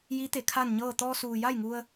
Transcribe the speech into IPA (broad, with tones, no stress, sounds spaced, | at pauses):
j i˧˥ t̪ e˩˧ kʰ a˥˨ n ɲ ɤː˥˨ t̪ ɔː˧ s uː˩ j a˥˨ j ŋ u˧ ə̯